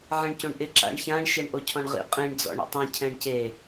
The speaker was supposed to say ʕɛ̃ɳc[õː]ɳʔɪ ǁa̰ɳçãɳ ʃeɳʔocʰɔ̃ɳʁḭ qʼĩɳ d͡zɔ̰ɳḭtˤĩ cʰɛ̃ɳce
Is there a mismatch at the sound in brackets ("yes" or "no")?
yes